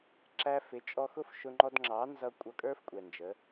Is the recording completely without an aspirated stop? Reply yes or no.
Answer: yes